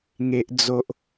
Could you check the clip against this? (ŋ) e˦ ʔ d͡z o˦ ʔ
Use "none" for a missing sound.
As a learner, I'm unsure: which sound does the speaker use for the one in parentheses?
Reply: ŋ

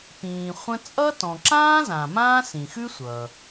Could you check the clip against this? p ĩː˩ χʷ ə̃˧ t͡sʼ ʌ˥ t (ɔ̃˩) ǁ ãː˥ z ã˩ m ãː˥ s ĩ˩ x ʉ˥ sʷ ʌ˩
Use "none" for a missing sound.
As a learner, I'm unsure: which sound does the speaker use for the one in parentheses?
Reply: ɔ̃˩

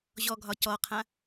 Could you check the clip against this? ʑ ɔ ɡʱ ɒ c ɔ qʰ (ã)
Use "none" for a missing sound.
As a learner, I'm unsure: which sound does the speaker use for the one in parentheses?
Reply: ã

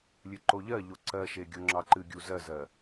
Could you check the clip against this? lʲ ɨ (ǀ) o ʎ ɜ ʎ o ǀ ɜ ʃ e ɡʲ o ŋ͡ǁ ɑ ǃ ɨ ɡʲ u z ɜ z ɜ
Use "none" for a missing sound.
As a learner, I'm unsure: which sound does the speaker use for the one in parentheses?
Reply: ǃ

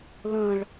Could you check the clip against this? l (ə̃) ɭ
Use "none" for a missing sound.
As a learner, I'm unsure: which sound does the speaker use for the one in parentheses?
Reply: ə̃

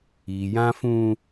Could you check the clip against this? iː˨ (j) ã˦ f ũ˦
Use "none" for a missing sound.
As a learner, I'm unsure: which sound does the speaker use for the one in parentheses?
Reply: j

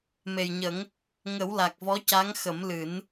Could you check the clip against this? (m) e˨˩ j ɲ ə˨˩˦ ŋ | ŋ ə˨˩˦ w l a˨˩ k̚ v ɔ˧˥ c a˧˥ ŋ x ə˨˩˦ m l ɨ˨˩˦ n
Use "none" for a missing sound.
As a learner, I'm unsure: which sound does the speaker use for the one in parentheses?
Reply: m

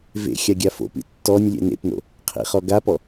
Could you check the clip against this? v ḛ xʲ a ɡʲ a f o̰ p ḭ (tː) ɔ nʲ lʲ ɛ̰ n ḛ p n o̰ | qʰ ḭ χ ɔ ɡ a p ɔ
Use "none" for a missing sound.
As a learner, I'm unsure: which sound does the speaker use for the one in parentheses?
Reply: tː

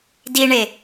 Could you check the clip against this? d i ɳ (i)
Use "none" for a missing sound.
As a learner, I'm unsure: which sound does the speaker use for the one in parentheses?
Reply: e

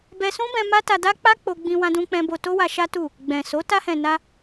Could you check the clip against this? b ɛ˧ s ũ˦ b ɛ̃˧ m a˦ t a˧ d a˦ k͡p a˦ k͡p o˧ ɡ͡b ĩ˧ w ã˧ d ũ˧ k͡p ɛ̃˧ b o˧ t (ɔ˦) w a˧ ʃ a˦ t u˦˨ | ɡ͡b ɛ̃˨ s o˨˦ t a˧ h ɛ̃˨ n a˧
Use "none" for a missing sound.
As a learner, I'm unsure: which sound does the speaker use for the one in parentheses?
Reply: o˦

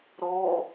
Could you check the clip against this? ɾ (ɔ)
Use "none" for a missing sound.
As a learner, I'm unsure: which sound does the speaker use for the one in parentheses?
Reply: ɔ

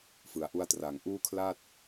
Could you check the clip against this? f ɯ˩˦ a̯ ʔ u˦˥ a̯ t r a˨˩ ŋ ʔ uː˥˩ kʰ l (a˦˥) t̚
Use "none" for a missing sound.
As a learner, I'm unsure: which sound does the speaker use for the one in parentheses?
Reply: a˥˩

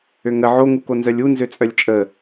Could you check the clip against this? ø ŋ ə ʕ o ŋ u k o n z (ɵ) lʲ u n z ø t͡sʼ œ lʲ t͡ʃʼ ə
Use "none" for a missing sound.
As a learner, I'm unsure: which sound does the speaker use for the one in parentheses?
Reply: œ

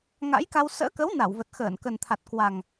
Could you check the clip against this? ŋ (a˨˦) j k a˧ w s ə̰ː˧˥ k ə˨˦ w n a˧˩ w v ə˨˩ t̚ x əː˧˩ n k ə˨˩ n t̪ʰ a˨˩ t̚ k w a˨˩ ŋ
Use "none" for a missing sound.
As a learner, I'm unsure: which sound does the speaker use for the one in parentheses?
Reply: a̰˧˥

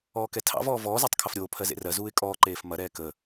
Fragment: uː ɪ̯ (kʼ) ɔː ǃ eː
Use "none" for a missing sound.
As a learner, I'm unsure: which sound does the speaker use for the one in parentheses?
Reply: kʼ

